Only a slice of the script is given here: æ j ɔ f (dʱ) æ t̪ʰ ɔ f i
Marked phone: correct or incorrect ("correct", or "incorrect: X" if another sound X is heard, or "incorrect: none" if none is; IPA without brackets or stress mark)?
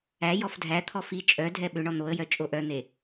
correct